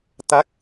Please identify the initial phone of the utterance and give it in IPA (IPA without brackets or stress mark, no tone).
t̪